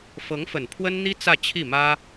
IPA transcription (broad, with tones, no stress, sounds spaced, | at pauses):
f ɤ˧˥ ŋ f ə˨˩ n pʰ w ə˥ n n̪ i˥ t͡s ä˥˧ t͡ɕʰ i˥˩ m ä˥